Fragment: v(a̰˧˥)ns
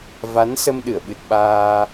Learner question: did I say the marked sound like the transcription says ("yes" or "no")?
no